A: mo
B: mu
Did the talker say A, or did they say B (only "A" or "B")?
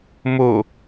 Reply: A